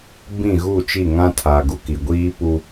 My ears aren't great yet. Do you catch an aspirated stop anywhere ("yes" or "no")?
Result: yes